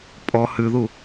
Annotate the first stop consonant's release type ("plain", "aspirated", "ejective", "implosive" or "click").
ejective